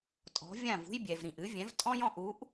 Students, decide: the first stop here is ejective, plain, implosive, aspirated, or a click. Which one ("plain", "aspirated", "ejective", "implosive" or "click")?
ejective